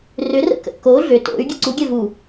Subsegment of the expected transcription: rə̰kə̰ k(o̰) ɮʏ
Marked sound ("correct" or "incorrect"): incorrect